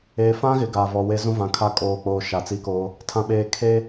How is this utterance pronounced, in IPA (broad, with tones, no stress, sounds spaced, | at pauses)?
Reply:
eː˨ f ã˦ ɣ ɪ˨ ɡ aː˨ v ɔ˨ w e˦ z ũ˦ v ã˨ kʰ a˦ kʼ oː˨ k͡p oː˨ ʃ a˨ t͡s i˦ k oː˦ | tʰ ã˨ ɓ eː˨ kʰ eː˦